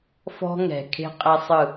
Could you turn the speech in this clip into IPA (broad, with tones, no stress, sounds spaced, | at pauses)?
f ɔ̤˦ ŋ ɛ̤˨ kʰ e̤˦ qʼ ɛ˦ sˤ ɯ˦˨